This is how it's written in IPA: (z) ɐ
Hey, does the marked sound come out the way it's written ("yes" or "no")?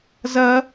yes